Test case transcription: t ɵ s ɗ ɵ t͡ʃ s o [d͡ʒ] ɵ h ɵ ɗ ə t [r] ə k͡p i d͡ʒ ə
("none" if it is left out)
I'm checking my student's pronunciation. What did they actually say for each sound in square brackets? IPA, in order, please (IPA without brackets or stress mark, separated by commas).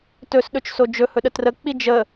d͡ʒ, r